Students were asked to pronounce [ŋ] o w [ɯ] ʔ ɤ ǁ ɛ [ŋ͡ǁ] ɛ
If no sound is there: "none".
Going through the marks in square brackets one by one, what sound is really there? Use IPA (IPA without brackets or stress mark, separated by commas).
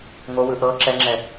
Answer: ŋ, ɯ, ŋ͡ǁ